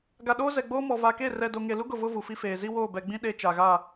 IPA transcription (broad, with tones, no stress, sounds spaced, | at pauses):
ɡ a˨ ɗ oː˦ z ɛ˨ ɡ͡b oː˦ m ɔ˨ v a˨ k e˦˨ r ɛ˨ d o˨ ŋ e˨ l u˦ ɡ ʊ˨ v ʊ˦ v u˨ f i˦ f eː˨ z i˦ w oː˦˨ b ɛ˨ ɡ͡b ĩ˦ ɗ e˦ t͡ʃ a˨ ɣ a˦˨